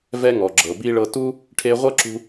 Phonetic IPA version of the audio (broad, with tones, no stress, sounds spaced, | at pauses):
v ɛ˧ ŋ ɔ˩ ɡ͡ǁ ɤ˩ b i˧ ɭ ɤ˧ t u˥ | ʈʰ e˧ ʁʷ ɤ˥ ǁ ṳ˧